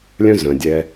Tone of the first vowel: high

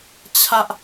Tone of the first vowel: high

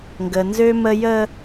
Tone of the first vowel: low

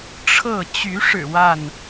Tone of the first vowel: falling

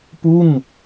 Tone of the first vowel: falling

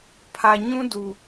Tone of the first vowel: low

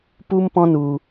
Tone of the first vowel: high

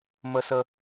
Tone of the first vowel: high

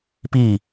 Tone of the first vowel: falling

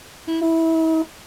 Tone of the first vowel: high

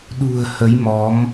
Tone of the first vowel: low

